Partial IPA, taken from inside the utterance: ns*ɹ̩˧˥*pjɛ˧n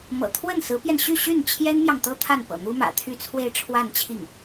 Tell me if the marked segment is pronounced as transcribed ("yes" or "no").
yes